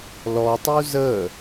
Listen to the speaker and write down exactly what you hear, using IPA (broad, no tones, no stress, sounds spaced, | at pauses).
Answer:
l ɔ tˤ u z ə